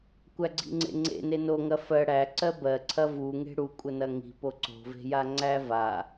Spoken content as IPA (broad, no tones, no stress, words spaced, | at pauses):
kʷæɡ͡ǀḭŋ͡ǀḛŋ͡ǀḛ nenoŋɐ fɜ ɽæ ǀɜbɜ ǀʰɐvu ŋe̤ɽukʷʼənɐ ŋi̤po ǀo̤ve̤ja ŋ͡ǀæva